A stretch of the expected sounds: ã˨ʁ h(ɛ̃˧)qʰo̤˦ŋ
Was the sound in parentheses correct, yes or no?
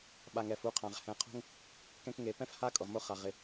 no